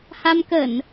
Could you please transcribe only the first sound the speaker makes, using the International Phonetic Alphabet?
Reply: h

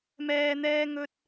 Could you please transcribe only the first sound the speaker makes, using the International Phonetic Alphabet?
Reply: m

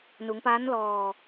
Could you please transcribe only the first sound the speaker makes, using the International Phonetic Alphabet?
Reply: n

